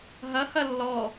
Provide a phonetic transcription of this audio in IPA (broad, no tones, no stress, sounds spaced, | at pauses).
ɦ ɐ h ɐ lː ɔ